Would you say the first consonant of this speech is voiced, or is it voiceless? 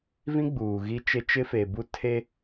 voiced